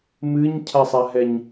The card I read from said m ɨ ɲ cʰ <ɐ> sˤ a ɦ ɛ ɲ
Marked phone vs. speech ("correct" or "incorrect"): incorrect